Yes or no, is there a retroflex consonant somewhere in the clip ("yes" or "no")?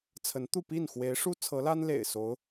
yes